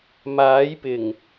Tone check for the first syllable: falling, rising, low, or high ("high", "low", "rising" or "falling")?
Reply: rising